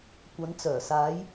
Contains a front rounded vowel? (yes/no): yes